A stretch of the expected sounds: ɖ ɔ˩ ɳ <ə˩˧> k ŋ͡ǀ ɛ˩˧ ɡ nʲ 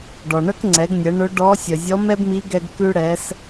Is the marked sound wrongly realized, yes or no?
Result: yes